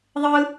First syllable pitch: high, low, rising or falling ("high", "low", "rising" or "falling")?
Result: high